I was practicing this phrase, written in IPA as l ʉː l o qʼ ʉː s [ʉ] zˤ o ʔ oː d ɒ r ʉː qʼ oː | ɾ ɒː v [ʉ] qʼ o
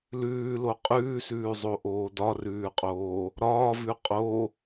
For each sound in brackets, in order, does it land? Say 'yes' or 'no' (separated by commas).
no, yes